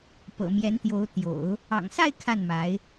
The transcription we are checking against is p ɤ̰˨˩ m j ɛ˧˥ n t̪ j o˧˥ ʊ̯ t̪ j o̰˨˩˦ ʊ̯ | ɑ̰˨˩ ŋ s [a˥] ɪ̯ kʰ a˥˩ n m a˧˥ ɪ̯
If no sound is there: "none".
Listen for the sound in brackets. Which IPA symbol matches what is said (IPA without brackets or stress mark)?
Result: a˥˧